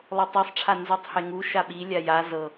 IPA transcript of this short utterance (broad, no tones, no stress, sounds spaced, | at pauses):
lˠ o tˤ i sˤ ʈ͡ʂʰ a n z y tˤ h e ŋ u ʃ a ɓ i lʲ a j a z ɤ